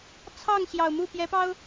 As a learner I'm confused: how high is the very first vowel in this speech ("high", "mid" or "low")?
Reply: low